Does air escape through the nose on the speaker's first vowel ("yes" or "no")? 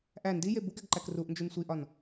no